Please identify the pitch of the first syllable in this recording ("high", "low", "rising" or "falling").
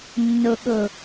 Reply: low